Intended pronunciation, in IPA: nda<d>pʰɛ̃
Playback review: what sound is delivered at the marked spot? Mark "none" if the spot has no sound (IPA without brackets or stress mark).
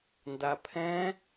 none